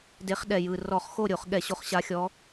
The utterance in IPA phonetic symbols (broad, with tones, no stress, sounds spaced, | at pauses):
d e˨˦ χ ɗ ɛ˨˩ j ɯ˨˩ r ɔ˧˩˧ χ x o˥˨ ɾʲ o˧˩˧ χ ɠ ɛ˧˩˧ ɕ o˨˦ χ ɕ a˨˦ xʲ ɔ˨˦